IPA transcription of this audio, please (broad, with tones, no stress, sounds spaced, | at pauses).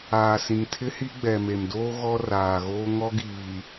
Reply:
aː˨ s ĩ˨ ŋ tʰ ɪ˦ h i˦ ɡ͡b ɛ˨ m e˨ m d oː˦ ɣ ɔ˦ r aː˨ ɣ oː˦ ŋ ɔ˦ ɡ iː˨